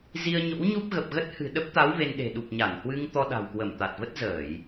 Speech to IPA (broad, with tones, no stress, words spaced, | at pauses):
zi˧ə̯ɲo̰˧˥wɲu˦˥p̚ ɣə˨˩p̚ɣə˦˥t̚ hɨ̤˨˩ɗə˦˥p̚t̪a˨˦w ve˧nɗe̤˨˩ ɗu˨˩p̚ɲa˧˩nhwɨ˧ŋ t̪ɔ˧ɗa̤˨˩wkwə˧˩m t̪a˨˩t̚və˦˥t̚zəː˧˩˨j